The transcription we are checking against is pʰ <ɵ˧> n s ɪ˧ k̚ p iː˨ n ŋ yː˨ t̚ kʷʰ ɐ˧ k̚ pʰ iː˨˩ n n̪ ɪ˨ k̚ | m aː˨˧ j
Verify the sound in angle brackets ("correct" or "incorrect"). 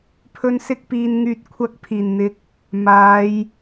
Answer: correct